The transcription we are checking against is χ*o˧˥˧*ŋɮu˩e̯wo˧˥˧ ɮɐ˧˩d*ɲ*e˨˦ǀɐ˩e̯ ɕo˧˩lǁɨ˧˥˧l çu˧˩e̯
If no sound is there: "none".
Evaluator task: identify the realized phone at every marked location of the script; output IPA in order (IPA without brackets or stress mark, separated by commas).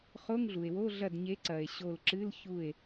o˧˥˧, ɲ